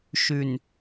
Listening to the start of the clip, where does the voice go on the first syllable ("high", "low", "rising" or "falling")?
low